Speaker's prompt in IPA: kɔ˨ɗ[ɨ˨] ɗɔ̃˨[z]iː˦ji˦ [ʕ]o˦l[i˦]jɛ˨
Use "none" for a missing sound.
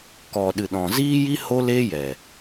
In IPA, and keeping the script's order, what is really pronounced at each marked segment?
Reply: ɨ˨, z, h, e˦

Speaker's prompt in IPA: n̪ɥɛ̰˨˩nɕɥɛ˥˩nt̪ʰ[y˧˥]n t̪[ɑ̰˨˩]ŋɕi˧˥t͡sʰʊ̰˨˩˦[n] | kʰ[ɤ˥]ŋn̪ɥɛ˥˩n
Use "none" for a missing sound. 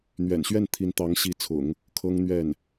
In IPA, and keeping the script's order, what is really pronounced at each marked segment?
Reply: i˧˥, ɑ˧˥, ŋ, ɤ˥

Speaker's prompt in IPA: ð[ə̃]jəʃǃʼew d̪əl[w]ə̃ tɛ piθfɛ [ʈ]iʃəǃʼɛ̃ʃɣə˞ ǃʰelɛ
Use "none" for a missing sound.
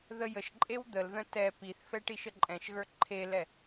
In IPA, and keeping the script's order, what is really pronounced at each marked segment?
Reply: ə, ð, ʈ

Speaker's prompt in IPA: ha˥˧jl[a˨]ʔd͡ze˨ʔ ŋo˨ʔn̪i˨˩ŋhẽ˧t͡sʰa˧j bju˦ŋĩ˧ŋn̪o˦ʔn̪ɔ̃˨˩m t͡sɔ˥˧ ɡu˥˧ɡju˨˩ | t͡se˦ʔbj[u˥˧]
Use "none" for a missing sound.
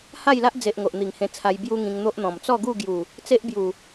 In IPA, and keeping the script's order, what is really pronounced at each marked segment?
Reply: a˦, u˨˩

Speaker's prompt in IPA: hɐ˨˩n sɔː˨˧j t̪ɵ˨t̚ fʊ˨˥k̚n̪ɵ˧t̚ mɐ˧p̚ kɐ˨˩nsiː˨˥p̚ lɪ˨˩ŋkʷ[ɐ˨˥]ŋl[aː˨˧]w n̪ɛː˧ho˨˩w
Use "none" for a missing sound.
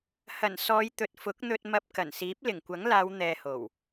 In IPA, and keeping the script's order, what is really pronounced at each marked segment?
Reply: ɐ˨˥, aː˨˧

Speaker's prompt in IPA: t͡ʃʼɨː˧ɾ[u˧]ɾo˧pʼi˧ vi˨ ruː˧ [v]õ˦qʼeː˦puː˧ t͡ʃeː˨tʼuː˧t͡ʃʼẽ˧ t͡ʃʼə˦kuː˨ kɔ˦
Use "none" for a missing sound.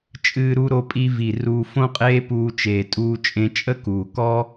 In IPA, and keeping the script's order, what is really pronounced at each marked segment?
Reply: u˧, f

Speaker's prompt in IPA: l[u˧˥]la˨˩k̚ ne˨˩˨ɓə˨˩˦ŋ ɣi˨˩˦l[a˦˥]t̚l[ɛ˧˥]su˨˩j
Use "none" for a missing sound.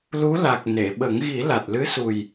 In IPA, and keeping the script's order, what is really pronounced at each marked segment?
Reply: u˧˥, a˨˩, ɨ˧˥

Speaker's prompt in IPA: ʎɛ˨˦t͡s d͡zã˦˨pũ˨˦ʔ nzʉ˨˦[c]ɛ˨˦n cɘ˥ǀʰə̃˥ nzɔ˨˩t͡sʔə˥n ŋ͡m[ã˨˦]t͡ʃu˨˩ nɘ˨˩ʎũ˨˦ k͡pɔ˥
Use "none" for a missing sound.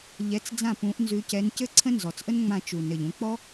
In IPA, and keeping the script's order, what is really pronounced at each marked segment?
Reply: c, ã˦˨

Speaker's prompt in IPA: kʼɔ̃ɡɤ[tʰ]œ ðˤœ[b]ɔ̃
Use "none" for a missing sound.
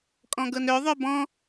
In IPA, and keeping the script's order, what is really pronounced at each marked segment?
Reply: n, b

